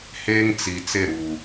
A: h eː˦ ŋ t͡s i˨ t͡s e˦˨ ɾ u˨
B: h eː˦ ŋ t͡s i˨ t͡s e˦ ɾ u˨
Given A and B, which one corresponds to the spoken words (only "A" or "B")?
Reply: A